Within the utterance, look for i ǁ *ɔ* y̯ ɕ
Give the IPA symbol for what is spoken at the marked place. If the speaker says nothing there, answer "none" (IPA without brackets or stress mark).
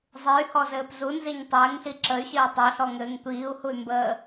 ə